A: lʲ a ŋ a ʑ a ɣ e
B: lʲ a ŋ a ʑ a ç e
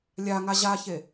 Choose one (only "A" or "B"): B